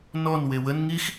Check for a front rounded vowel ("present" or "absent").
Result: absent